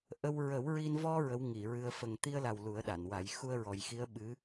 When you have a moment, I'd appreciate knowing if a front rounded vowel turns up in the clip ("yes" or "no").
no